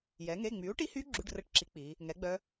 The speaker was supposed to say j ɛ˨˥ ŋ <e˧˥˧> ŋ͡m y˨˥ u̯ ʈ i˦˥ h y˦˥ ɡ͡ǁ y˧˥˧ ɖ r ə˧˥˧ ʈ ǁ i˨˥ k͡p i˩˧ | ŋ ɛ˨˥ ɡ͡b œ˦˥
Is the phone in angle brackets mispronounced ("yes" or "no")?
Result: no